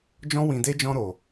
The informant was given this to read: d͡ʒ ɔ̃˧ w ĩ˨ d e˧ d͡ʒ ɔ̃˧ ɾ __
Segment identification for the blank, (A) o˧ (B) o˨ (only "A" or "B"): B